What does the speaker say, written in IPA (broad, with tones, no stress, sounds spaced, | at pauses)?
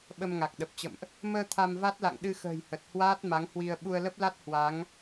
ɓ ə˧ m ŋ a˨˩ k̚ ɗ ə˨˩ p̚ t͡ɕ ə̰˧˨ m ʔ | m əː˧ t̪ʰ a˧ m v a˦˥ t̚ l a̰˧˨ ŋ ɗ ɨ˧ x ə̤ː˨˩ j h ə˨˩ t̚ h w aː˦˥ t̚ m a˨˦ ŋ h w i˧ ə̯ ɓ u˧ ə̯ l ə˦˥ p̚ l a˦˥ t̚ h w a˨˦ ŋ